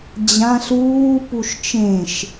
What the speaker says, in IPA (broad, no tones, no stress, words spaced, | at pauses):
d͡ʑãɬ uːpuʃ t͡ʃẽʃ